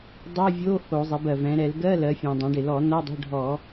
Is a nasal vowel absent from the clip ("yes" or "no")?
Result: no